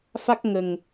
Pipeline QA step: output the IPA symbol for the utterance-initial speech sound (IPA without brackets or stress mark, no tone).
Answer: f